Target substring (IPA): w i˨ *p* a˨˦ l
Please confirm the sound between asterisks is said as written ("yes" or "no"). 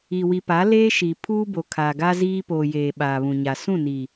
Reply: yes